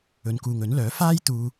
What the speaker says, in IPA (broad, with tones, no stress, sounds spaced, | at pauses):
ɵ˨ n k uː˨ ŋ ɵ˨˥ n l œː˨˥ f aː˥ j t̪ uː˧